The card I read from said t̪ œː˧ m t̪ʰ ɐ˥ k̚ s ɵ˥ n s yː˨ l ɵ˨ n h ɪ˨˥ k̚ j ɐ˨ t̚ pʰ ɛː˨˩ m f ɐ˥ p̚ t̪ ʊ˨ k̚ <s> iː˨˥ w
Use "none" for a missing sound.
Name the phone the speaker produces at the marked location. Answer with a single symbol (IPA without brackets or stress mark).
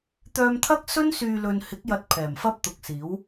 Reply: s